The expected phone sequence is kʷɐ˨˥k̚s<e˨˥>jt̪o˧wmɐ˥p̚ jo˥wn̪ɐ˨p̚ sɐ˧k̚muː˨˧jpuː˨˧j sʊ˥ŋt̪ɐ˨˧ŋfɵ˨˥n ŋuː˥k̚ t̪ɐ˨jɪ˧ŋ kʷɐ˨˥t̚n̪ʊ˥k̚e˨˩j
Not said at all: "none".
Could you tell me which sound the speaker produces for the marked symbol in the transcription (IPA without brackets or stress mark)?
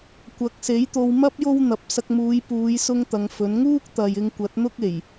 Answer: e˨˥